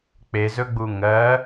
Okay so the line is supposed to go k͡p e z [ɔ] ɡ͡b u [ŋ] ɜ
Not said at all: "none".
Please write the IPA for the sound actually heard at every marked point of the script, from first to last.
ɵ, ŋ

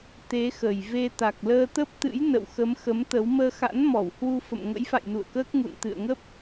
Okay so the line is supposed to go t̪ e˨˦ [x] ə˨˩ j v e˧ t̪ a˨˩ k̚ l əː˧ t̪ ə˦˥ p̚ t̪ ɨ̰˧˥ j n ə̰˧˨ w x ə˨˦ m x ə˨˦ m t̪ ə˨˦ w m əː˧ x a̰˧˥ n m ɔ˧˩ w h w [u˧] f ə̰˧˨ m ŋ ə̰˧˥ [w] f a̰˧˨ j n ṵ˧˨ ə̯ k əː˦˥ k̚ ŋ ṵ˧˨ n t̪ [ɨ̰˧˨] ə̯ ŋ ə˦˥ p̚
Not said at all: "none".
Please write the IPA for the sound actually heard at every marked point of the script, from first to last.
x, u˧, j, ɨ̰˧˨

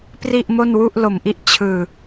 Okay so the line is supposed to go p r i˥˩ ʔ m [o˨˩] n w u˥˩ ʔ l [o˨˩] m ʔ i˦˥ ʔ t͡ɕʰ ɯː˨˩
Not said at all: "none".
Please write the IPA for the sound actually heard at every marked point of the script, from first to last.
o˥˩, o˨˩

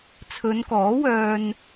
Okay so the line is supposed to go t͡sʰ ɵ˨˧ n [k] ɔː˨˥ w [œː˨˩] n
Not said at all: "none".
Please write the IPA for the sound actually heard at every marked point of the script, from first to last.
k, œː˧

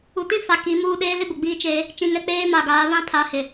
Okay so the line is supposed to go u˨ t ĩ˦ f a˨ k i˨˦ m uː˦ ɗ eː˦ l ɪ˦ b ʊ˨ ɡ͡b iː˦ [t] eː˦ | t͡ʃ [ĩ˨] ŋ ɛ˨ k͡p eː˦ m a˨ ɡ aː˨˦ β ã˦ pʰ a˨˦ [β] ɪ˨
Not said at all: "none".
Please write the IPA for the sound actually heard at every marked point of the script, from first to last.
t͡ʃ, ĩ˨, h

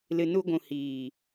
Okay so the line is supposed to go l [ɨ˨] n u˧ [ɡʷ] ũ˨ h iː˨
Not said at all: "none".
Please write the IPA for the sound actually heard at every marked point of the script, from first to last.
ɨ˨, ɡʷ

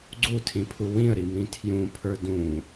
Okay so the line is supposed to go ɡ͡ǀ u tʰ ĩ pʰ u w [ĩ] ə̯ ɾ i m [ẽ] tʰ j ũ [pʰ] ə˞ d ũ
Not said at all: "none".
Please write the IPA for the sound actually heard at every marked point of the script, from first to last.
ĩ, ĩ, pʰ

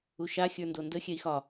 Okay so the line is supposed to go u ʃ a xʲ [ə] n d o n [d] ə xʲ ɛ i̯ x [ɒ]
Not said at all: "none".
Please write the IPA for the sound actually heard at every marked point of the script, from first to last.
ə˞, d, ɒ

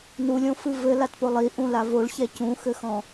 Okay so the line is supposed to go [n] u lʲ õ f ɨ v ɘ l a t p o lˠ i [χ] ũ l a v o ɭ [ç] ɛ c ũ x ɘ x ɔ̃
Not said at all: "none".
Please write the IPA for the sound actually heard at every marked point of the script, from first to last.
n, ʔ, ç

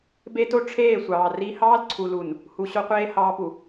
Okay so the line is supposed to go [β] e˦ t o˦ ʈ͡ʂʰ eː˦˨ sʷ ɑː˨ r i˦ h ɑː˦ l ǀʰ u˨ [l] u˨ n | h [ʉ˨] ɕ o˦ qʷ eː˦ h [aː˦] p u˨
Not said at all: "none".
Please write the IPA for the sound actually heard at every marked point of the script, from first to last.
b, l, u˨, ɑː˦

